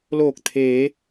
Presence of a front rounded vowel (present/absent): absent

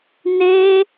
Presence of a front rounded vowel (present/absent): absent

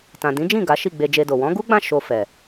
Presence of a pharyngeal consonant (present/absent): absent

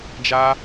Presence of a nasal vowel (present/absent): absent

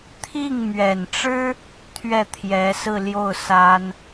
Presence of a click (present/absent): absent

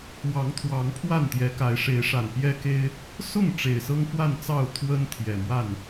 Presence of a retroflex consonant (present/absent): present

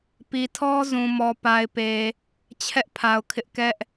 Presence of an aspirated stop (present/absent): present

